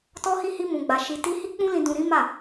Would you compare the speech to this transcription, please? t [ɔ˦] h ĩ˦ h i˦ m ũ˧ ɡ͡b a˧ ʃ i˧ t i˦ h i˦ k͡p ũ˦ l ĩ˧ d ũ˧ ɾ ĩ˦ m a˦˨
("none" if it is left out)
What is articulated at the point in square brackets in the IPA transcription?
ɔ˦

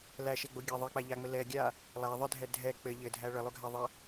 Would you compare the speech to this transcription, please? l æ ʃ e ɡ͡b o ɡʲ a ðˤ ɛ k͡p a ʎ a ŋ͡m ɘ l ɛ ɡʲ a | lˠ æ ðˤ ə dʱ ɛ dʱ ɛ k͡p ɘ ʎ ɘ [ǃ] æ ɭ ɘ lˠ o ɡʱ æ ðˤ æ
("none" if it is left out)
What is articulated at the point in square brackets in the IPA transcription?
dʱ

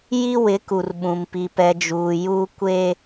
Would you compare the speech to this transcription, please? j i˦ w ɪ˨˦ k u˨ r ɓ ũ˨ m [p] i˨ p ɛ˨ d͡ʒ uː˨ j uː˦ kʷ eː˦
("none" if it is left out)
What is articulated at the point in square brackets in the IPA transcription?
p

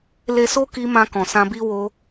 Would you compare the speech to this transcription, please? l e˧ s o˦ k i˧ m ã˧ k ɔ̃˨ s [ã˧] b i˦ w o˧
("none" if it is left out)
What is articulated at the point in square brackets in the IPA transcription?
ã˧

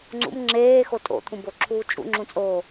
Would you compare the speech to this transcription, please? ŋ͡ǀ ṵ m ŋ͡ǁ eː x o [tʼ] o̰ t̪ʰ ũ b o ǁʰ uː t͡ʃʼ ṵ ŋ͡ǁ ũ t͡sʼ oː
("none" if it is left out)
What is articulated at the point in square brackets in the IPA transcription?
tʼ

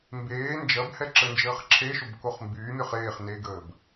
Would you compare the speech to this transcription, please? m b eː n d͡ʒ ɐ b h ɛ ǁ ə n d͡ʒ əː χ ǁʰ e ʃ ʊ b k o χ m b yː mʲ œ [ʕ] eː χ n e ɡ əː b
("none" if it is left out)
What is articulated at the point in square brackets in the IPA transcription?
χ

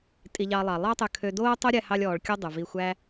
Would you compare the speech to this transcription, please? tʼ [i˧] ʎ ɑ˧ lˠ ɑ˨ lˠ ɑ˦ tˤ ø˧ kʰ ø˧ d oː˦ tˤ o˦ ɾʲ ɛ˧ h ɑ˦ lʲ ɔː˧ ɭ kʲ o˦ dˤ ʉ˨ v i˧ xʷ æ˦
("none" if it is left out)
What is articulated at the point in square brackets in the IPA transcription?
i˧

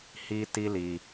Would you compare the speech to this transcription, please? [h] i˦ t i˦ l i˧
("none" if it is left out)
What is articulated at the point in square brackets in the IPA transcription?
h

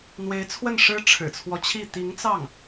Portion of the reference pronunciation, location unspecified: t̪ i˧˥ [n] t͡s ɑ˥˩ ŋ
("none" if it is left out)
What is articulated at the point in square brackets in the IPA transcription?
ŋ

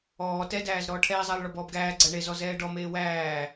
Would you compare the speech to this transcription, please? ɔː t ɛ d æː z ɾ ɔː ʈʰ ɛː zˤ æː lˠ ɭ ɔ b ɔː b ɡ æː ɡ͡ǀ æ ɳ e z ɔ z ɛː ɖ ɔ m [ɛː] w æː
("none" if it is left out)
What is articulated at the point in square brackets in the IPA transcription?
eː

